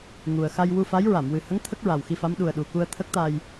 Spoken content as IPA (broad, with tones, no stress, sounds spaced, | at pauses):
ŋ u˨˩ ə̯ x a˧ j w u˧ f a˧˥ j ɹ a˨˩˨ m w ɨ˨˩ h ə˧˥ ŋ t̪ʰ ə˦˥ k̚ ɹ a˨˩ w x i˧ f a˧˥ m ɗ u˨˩ ə̯ ɗ u˨˩ k u˧ ə̯ t̪ʰ ə˦˥ k̚ t̪ a˧ j